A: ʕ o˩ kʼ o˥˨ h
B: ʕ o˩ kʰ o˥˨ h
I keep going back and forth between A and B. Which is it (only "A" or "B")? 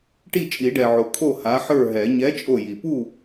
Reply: B